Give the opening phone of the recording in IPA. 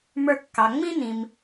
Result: m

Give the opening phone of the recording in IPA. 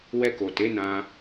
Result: w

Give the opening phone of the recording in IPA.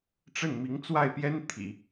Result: ʈ͡ʂ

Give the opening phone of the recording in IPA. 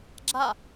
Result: ɡ͡ǁ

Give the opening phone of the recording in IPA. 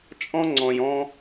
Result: t͡ʃʼ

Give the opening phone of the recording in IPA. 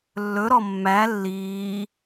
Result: lː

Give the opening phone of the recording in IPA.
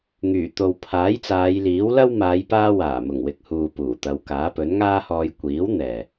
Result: ŋ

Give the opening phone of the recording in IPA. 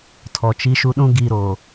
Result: tʰ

